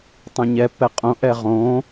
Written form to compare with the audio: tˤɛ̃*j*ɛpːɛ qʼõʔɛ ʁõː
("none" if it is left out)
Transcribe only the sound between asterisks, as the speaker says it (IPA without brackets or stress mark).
ɲ